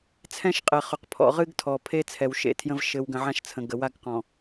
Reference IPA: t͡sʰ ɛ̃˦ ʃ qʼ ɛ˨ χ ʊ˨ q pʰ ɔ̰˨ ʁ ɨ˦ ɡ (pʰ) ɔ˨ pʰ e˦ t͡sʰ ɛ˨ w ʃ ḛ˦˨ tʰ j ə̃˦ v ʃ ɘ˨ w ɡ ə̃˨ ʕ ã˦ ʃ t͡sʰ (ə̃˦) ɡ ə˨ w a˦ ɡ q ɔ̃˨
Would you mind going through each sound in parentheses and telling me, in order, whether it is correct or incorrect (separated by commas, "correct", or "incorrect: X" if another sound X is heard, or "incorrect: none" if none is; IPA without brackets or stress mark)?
incorrect: tʰ, incorrect: ə̃˨